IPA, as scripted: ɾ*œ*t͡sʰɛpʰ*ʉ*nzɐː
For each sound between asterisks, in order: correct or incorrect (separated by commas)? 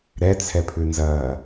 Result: incorrect, correct